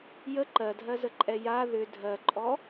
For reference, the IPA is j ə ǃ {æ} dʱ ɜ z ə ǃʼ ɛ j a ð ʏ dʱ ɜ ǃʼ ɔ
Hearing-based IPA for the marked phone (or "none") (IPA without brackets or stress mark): ɜ